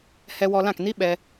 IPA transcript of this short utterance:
h ɛ˧ w ɔ˧ l ã˦˨ k n i˦ ɓ ɛ˦

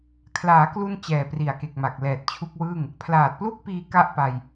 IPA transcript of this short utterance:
kʰ l aː˩˦ k l u˧ n t͡ɕ ɛː˨˩ p r i˨˩ a̯ k e˨˩ k̚ m a˨˩ k̚ l ɛː˨˩ t̚ t͡ɕʰ u˦˥ k̚ w ɯː˥˩ ŋ | pʰ l aː˨˩ t̚ p l u˦˥ k̚ p iː˧ k a˦˥ ʔ p a˧ j

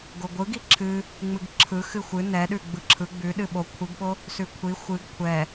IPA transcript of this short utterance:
ɡ o ɡʷ ɯ ɡ i ǁʰ ɨ | ŋ͡m ɨ ɡ ǁʰ ɯ x ɨ xʷ ɨ n ɛ ɗ ʉ ɡ͡b ɯ ǁʰ ɯ ɡ͡b ʉ ɗ ɨ ɓ o kʷʰ i ɡ ɓ o | s ʉ kʷʰ i xʷ ɨ ɡ kʷʰ ɛ

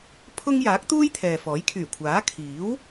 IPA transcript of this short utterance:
pʰ ʊ˥ ŋ j aː˨˥ k̚ t̪ uː˥ j t̪ʰ ɛː˨ f ɔː˨˥ j kʰ yː˨˩ kʷʰ aː˨˥ kʰ iː˨˥ w

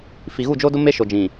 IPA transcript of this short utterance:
f i˨ ɣ u˦˨ d͡ʒ o˦ d ʊ˦ m e˦ ʃ o˨ d͡ʒ ĩ˨

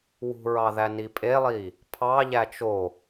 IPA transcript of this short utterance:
w ṳ ɹ ɑ ð æ n i pʼ e lˠ i | pʰ ɑ ʎ æ t͡ʃ o

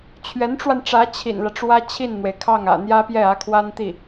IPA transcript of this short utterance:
t͡ɕʰ ɥ ɛ˧˥ n ʈ͡ʂ w a˧ n ʈ͡ʂ ä˧˥ t͡ɕʰ ḭ˨˩ n l ä˦ ʈ͡ʂ w ä˥ t͡ɕʰ i˥˩ n n̪ w e˩ ɪ̯ kʰ ɑ˥˩ ŋ ä̰˨˩ n̪ j ä˥ p j ɛ˥˩ ä˧˥ kʰ w a˥ n t̪ i˥˩

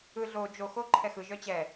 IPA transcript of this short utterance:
ɯ ɮ o d͡ʒ o x o ǃʰ ɛ x ɯ ʒ œ t͡ɕ ɛ

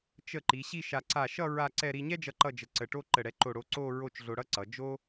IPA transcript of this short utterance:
t͡ʃ ə˧˩ ǃ i˩˧ ɕ i˥˧ ʃ a˧ ǀ a˧˩ ʃ ʌ˥˧ ɹ a˥˧ ǀ ɛ˥˧ ɾ i˧ ɲ ɛ˥ d͡ʒ ʌ˧ ǃ ʌ˥˧ d͡ʒ ə˧˩ ǀ ə˧˩ ʈ o˥ ǃ ə˧˩ ɽ ɛ˧ ǃ o˧˩ ɽ o˧ ǀ o˥˧ ɹ o˥˧ t͡ʃ ɮ o˧ ɽ ʌ˥ ǀ ʌ˩˧ d͡ʒ o˥

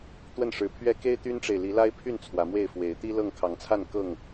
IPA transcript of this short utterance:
t̪ w ə˥˨ n ʂ ɻ̩˨˦ pʰ ɥ ɛ˦ k e˦ ɪ̯ t̪ y˦ n ʈ͡ʂ e˨ ɪ̯ l i˨˦ l a˦ ɪ̯ pʰ y˥˨ n t͡sʰ w ä˨˦ m w e˥˨ ɪ̯ f w e˨˦ ɪ̯ t̪ i˦ l ɤ˥˨ ŋ kʰ ɑ˨˦ ŋ t͡sʰ a˥˨ n k ɤ˥˨ ŋ

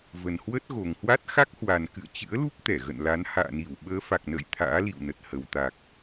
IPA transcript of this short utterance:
v ə˨˩ n h w ə˦˥ t̚ ɣ o˨˩ ŋ h w a˦˥ t̚ x a˦˥ k̚ h w a˨˩ n k ɨ̰˧˨ ə̯ t͡ɕ ɨ̰˧˥ ə̯ l u˦˥ p̚ t̪ ɛ˧˩ ɣ ə̰˧˨ n l a˨˦ n h a̰ː˧˨ n i˧˩ w ɓ əː˨˦ f a˨˩ k̚ n ə̰ː˧˨ j t̪ʰ a̰ː˧˥ l ḭ˧˨ w n ə˨˩ t̚ h ə˨˩ w t̪ a˨˩ k̚

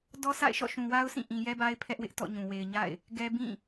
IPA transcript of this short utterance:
d ɔ˦ s a̰˦˨ ɪ̯ ʃ ɔ̰˦˨ ʃ ũ˨ w a˦ ʊ̯ s ĩ˦˨ ʔ ĩ˨ j ɛ˦ b a˦ ɪ̯ pʰ ɛ˦ ʔ w ɪ˦ ʔ t ɔ̰˦˨ ɲ ũ˨ w e˨ ɪ̯ ɲ a̰˦˨ ɪ̯ | ɡ ɛ˦ b ĩ˦˨

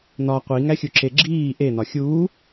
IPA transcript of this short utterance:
n̪ ɒ qʷ i ŋ æ xʲ u ǁ e ɡ͡ǁ iː ʔ e n̪ ɒ xʲ uː

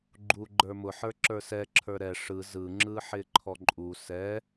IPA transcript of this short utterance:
ɡ͡ǃ u ɡ͡ǃ ə˞ m ʊ ħ ə˞ ǁ ə˞ s ɛ ǁʰ ə˞ ɾ ɛ ʂ ɯ z ɯ ŋ͡ǁ ɯ ħ ɪ ǃʰ ɔ ǃʼ u s ɛ

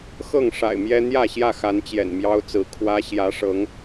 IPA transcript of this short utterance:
x ɤ˥˨ ŋ ʂ a̰˨˩ ɪ̯ m j ɛ˦ n̪ j ä˥˨ ɕ j ä˥˨ x a˨˦ n t͡ɕ j ɛ̰˨˩ n m j ɑ˦ ʊ̯ t͡s ɹ̩˨˦ kʰ w ä˦ ɕ j ä˨˦ ʂ ɤ˨˦ ŋ

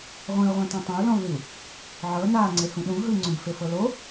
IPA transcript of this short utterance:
ʁʷ ĩ u̯ ʁʷ ẽ t ã tˤ ã u̯ l ɔ̃ u̯ l i u̯ | ʕ ɤ n aː ŋ͡ǀ e h ũ ɗ ũ ɦ ɯ ŋ͡ǀ ũ b f e f ɤ l o

